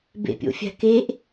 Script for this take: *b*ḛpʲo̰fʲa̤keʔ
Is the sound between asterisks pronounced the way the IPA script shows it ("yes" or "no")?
yes